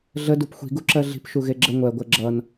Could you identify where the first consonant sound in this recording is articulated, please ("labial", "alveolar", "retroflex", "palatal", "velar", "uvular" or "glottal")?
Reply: alveolar